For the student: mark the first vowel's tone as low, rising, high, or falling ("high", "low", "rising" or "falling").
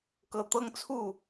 low